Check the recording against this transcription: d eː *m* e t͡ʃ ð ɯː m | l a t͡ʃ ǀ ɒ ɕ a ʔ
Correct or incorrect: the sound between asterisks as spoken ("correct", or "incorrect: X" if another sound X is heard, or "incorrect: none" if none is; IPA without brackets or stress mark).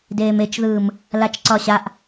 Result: correct